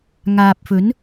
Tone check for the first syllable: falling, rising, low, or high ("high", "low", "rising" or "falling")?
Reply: low